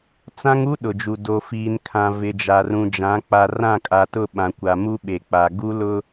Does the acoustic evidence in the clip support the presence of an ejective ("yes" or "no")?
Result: yes